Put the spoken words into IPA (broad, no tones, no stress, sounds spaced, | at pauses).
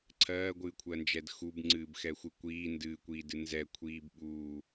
ǀʰ ɜː ɡʷ ɨː kʷʰ ɜ n d͡ʒ ɛ d x u b ŋ͡ǀ ɨː b x ɛ xʷ ɨ kʷ iː n d ɨː kʷ iː d ɨ n z ɛ kʷʰ iː b ɓ uː